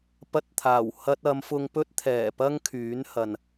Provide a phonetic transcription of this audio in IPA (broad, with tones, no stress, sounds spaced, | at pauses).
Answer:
p ɐ˧ t̚ t̪ʰ aː˨˩ w h ɐ˧ t̚ ɐ˨˧ m f ʊ˧ ŋ p ɵ˥ t̚ t̪ʰ ɛː˨˩ p ɐ˥ ŋ kʰ yː˨˥ n h ɐ˨ n